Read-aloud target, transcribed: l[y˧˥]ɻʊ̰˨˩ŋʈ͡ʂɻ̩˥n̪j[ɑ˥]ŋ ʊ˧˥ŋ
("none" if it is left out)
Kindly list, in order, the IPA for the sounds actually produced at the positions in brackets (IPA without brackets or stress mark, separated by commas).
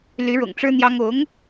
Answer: y˧˥, ɑ˥